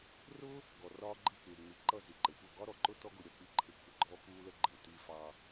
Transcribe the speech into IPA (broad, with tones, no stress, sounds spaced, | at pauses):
r ʊ˦ | ɡ ɔ˨ r ɒː˦ ɡ͡ǃ i˦˨ k͡p ɪː˨ ŋ͡m i˨ ǃ ʌ˦˨ z i˨ ǃ ə˨ xʷ ʌ˦˨ ɡ ɒ˦ ɾ ɔ˨ ǃ ʊ˦ t ɔ˦ ɡ ʊ˧ ɾʲ ʌ˧ k͡p i˦˨ ǃʰ ɪ˧ kʷʰ ə˧ ɡ͡ǃ ɔ˦ x uː˦ l ə˦ ɡ͡ǃ ɪː˨ t i˧ f ɑ˧